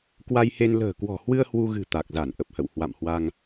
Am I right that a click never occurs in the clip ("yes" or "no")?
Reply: yes